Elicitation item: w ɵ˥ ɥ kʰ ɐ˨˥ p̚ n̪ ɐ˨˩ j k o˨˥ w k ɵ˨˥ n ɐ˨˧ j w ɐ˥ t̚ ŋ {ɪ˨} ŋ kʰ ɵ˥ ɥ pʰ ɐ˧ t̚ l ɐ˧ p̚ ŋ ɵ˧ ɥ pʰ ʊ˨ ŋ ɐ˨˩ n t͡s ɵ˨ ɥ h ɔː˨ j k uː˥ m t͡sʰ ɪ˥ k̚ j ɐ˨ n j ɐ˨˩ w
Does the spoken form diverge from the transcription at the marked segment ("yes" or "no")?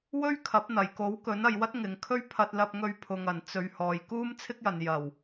no